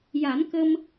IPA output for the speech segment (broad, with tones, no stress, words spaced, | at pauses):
ja˨˩˦n kə˧m